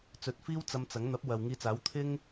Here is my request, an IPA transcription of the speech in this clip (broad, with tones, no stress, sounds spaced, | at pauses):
t͡s ɵ˨˥ t̚ f iː˥ w t͡s ɐ˧ m t͡s ɐ˨˥ ŋ n̪ ɐ˨˥ p̚ w ɐ˨ w ŋ iː˧ t͡s aː˨˥ w t̪ʰ ɪ˥ ŋ